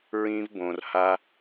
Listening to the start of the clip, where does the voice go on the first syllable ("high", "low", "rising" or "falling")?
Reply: high